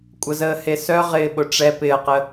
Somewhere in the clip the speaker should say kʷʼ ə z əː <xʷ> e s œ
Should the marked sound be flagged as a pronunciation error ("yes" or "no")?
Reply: yes